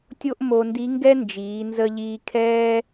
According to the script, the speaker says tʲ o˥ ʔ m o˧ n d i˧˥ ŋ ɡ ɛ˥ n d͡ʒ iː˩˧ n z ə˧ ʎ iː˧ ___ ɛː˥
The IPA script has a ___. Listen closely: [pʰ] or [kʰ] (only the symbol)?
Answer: kʰ